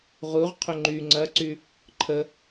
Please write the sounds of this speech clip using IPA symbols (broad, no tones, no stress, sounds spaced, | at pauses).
ʁ u ʁ qʰ ʏ ŋ͡ǃ y ŋ͡ǀ ɐ ǀ y | ǃʰ ə